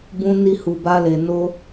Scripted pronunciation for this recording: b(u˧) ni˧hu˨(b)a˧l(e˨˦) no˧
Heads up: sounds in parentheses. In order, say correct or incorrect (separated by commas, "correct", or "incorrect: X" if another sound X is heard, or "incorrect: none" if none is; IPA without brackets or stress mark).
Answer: incorrect: ũ˧, correct, incorrect: e˨